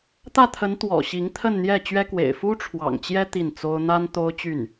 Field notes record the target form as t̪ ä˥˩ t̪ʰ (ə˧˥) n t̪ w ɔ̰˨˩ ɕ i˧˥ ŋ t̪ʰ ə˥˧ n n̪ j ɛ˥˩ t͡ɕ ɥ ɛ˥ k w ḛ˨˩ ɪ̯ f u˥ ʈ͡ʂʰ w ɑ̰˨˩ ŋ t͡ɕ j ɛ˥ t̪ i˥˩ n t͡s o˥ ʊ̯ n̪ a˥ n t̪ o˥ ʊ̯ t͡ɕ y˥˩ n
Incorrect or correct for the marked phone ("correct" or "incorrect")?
correct